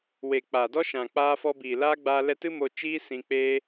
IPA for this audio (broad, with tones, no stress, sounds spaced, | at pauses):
w e˨ k͡p a˨ d ɔ˦ ʃ ã˨ k͡p aː˧ f ɔ˧ b iː˨ l aː˦ ɡ͡b aː˧ l ɛ˧ t ɨ˦ m o˧ t͡ʃ iː˦ s ĩ˧ k͡p eː˦